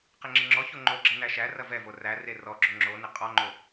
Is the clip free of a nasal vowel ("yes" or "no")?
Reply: yes